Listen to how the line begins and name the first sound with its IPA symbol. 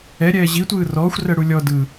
ɛ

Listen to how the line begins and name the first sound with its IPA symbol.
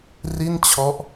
r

